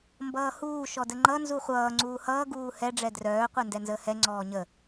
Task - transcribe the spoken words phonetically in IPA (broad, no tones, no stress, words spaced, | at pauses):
mbʌːhuː ʃɔdəŋ͡ǃʌ nzuχʷʌː ŋ͡ǀuːhʌː ɡuːhɛ ɖ͡ʐɛdrœː qʷɛndɛnzəːhɛ ŋ͡ǀɔːɲə